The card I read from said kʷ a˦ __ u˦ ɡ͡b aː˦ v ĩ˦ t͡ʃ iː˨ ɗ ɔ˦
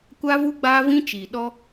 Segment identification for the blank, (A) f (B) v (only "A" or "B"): B